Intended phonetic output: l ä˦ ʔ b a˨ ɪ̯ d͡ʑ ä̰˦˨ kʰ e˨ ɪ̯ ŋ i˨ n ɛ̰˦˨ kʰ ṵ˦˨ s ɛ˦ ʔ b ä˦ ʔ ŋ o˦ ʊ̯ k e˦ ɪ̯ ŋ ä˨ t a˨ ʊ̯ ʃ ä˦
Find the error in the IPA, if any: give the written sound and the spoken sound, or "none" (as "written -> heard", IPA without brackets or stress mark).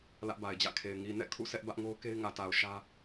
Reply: none